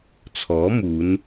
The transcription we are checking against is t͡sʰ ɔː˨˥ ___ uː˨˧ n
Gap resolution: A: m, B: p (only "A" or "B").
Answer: A